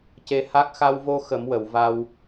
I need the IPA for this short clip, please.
ce˧ha˦˥k̚ xa˧wvo˧ xə˨˩˦mwə˨˩˨w va˧w

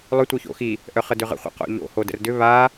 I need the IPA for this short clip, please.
lˠʏ tʷœço̰xi | ʔœχədʏʁə̰ χʷə̰qo̰ʎo̰ hodə̰rdʏ βa

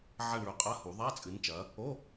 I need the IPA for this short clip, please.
ʕɐ˦˨ɳɭɵ˨˦qʼɐ˧˥˧hu˨˩˦ ðˤa˧˥˧t͡sʼɨ˨˦nt͡ʃɐ˨˦ | o˧˥˧

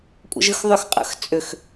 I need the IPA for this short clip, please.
kʷʼə̰ʒɯxðˤʏx qʼə̰x t͡sʼʏx

